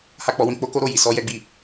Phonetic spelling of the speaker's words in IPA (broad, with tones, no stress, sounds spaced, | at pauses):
h a˦ k͡p ɔ˧ w ĩ˦ k͡p o˦ k o˦ ɾ o˦˨ j i˨ s ɔ˧ j ɛ˦ ɡ͡b i˦˨